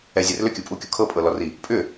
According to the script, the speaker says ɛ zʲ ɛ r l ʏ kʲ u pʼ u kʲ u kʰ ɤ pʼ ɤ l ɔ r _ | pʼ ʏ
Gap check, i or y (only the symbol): i